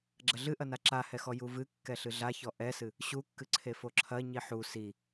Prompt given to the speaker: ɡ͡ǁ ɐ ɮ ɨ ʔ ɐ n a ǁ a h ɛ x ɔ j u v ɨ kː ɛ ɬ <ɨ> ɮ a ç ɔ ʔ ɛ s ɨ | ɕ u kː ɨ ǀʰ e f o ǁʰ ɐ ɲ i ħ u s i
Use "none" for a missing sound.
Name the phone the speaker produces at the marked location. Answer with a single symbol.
ɨ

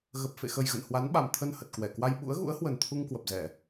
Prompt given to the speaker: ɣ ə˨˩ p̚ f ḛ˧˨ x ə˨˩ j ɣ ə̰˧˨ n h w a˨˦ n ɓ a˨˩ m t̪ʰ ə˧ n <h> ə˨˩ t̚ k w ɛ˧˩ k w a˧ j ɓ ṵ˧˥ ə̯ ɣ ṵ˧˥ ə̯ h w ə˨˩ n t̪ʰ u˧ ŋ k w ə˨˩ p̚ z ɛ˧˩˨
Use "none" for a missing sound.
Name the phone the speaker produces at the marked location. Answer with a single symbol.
h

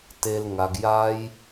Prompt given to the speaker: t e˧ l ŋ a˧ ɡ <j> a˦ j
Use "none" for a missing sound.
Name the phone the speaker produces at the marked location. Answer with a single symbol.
j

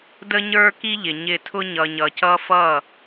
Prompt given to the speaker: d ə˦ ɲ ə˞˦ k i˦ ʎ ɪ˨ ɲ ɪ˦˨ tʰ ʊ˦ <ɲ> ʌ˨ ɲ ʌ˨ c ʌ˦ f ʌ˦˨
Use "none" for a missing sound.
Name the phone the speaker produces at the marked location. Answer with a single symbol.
ɲ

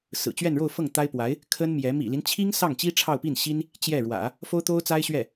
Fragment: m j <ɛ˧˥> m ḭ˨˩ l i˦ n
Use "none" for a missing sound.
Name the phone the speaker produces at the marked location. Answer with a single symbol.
ɛ˧˥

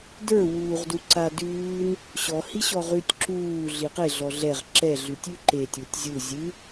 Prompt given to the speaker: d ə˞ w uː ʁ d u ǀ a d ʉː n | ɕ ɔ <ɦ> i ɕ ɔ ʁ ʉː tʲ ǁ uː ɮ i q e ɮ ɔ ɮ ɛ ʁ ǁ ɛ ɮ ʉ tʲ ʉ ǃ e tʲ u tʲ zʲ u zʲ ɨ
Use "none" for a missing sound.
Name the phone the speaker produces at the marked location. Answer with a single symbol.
h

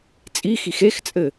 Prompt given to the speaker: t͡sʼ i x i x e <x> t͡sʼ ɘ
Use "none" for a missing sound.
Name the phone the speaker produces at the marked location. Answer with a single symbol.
x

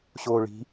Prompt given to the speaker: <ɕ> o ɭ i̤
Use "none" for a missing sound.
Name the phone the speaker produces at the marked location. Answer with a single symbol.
ɕ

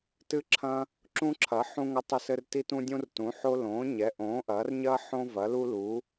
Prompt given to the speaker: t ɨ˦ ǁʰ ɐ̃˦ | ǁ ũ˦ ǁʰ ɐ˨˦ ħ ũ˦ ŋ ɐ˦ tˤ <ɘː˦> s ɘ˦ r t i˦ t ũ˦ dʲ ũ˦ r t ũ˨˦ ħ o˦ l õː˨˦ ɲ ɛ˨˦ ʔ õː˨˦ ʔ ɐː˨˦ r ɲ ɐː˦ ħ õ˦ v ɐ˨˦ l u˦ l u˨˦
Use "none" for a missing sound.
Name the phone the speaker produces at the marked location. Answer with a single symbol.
ɘ˦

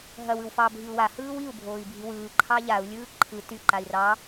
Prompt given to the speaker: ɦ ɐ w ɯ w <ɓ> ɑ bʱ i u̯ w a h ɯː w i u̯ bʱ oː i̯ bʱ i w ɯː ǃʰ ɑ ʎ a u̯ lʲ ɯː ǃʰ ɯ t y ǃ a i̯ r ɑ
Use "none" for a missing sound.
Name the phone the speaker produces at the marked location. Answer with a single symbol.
f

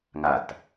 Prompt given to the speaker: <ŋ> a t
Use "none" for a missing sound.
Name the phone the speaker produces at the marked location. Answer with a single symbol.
ŋ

